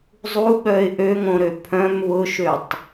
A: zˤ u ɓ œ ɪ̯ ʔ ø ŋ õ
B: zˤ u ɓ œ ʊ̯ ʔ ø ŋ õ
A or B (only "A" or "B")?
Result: A